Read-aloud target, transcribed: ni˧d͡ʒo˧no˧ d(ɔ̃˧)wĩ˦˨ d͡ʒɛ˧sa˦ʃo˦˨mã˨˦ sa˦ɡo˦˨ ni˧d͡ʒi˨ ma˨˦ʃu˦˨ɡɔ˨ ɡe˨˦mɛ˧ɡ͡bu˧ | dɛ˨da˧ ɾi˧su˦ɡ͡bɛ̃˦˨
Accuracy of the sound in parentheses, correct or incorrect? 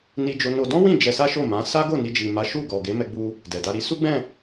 incorrect